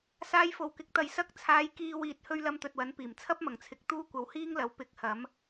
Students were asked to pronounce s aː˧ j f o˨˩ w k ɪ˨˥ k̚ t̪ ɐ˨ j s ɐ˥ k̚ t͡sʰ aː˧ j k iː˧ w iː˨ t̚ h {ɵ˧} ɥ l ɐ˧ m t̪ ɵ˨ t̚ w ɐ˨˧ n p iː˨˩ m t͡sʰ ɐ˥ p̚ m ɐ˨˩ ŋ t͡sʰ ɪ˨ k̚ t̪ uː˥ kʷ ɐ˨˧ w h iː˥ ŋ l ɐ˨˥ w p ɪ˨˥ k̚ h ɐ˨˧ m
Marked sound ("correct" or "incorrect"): correct